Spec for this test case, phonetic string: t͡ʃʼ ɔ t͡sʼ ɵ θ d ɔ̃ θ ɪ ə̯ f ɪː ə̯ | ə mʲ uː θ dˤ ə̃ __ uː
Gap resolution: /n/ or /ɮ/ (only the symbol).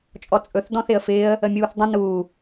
n